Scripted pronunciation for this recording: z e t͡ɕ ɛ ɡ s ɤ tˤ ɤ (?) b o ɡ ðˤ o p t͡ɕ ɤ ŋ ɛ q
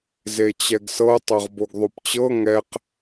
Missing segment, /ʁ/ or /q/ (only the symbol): ʁ